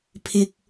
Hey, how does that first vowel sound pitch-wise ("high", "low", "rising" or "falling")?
low